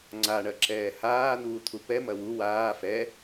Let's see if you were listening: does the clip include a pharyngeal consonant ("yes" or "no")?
no